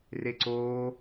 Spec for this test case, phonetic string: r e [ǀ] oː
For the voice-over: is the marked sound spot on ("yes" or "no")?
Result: yes